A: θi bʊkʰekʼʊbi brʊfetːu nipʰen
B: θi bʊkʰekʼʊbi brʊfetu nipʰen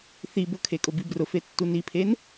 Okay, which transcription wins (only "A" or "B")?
A